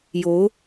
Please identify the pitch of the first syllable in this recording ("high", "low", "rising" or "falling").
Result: rising